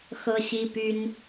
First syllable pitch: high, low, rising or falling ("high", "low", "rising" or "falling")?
high